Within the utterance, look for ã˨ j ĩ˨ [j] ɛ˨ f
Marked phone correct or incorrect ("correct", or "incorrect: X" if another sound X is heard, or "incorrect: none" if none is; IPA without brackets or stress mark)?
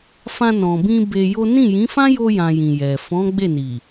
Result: correct